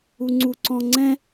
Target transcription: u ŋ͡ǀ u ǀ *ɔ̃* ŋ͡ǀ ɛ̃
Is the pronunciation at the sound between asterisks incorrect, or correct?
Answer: correct